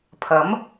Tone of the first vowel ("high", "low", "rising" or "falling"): rising